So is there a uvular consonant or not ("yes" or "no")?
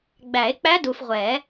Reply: yes